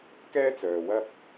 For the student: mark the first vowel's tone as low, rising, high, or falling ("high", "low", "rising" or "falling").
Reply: high